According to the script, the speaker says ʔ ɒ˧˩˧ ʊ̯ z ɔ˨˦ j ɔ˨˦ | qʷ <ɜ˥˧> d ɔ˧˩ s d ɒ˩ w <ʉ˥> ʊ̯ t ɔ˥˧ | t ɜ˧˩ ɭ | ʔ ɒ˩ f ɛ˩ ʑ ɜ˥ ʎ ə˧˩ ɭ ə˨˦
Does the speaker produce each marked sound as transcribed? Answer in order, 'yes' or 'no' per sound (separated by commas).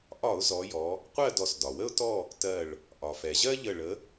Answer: yes, no